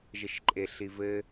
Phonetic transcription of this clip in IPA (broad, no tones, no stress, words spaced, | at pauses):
ʒɘʃǃʼeɬivɘ